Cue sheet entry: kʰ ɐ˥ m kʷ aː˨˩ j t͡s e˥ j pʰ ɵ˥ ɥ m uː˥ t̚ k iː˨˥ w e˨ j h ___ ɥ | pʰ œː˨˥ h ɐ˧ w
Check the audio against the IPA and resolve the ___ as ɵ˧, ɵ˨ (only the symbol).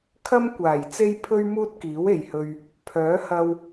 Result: ɵ˧